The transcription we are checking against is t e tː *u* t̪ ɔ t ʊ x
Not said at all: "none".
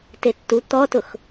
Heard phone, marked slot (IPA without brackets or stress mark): u